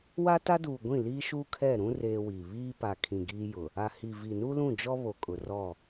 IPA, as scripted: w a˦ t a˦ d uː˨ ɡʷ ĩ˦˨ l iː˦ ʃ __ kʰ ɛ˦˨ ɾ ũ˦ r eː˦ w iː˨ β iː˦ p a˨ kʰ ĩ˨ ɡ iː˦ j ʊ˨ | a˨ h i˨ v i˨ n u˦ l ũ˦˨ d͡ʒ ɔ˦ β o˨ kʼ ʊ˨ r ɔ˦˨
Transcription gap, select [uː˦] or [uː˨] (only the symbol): uː˦